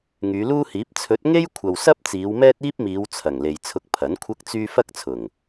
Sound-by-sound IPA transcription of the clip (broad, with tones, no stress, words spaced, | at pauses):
ŋyː˨˧luː˥hiː˨˥p̚ t͡sʰɵ˨˥t̚ŋe˥j kʷʰɐ˨w sɐ˥p̚ t͡siː˨˧wmɛː˥t̚iː˥p̚miː˨˧w t͡sʰɐ˨˩ŋ le˨jt͡sʰʊ˧k̚ pʰɐ˨˥nkʷʰɐ˥k̚t͡syː˥ fɐ˥k̚t͡sʰʊ˨˩ŋ